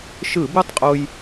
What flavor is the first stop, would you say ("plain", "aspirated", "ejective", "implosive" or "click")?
plain